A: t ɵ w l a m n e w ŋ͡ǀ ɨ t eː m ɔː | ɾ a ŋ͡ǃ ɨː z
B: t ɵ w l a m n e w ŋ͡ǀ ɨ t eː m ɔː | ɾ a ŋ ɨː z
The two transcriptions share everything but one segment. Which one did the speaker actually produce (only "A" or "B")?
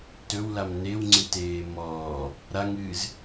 B